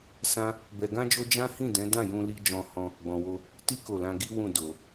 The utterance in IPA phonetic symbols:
s ã˦ | b ɛ˧ ɡ ã˦ d͡ʒ o˦ d͡ʒ ã˦ h ĩ˦˨ d ɛ̃˨˦ d ã˦˨ j ũ˧ l i˧ d͡ʒ ɔ̃˧ h ɔ̃˦ | ɡ͡b ɔ̃˧ w o˦ | t i˦ k o˦˨ l ã˧ ɡ i˦ w ũ˦˨ d o˧

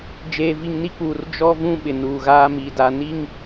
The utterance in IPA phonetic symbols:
d͡ʒ eː˨ v i˨ ŋ n i˦ k͡p uː˨ r d͡ʒ ɔ˦ v ũ˦ ɓ ɪ˨ n uː˨ ɣ aː˦ m i˨ d a˨ n i˦ ŋ

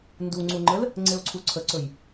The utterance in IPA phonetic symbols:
n d u ŋ͡ǀ u ŋ͡ǃ ə l | ŋ͡ǀ e o̯ ǀʰ u ǀʰ ə ǀ ɵ j

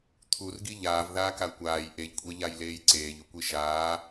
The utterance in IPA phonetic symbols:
t̪ʰ u r ɡ i ʎ aː v ð aː k a kʷ aː j ʔ e ʎ kʷʼ e ʎ a j l eː j ǀ eː ʎ u kʷ i ʃ aː

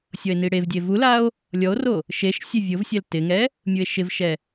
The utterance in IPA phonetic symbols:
sʲ ɔ e̯ n i ɽ e v dʲ e v u l a o̯ | lʲ ɔ o̯ r o | ʃ e ʃ sʲ e vʲ ʊ v sʲ ɛ l t ɪ ŋ ɛ | mʲ u e̯ ʃ ɪ v ʃ ɛ

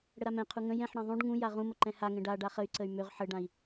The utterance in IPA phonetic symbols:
ɽ ə ɾ a m ɛ̃ qʰ u ŋ ə̃ j ɛ̃ ħ ɽ ã ðˤ ũ ɖ ŋ ũ j a ʁ ũ m ə ǃ ɛ̃ h a ŋ ɛ̃ ɖ a ɖ a χ ə y̯ ǀ ə y̯ m ø ʁ ħ ə ɖ ã i̯

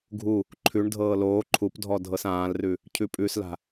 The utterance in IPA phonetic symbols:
ɡʱ u | ǃʰ ʉ ɳ dʱ ɤː l oː ǃʰ u p dʱ ɔ dʱ ɤ s ãː l r ʉ | cʰ ʉ pʼ ʉ s l a̤

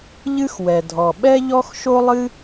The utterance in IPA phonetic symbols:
ʎ ɨ˥ x w ɛ˩ dʱ ɔ˩ ɓ ɛ˥ ʎ ɔ˥ x ʃ o˥ lˠ ɨ˥

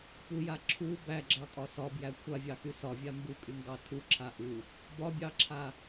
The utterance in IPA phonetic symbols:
p u j a ǁʰ u b æ ɡ͡ǁ ɑ kʼ ɒ s ɒ b j æ kʷʰ a vʲ ɑ x y s ɒ vʲ a m b u kʼ y ŋ ɡ ɑ tʰ u ǁʰ a ʔ u | b ɒ bʲ ɑ ǁʰ a

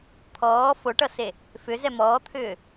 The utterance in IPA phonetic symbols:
t̪ʰ ɔː f o ʈ ʌ s e | f ʏ z ɛ m ɔː t̪ʰ ʏː

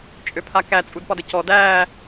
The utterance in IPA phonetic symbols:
t͡ʃʼ ø pʰ a k æ t͡sʼ u d p ɒ d ə c ɔ d æː

